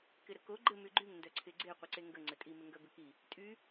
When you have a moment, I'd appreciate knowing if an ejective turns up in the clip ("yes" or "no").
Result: yes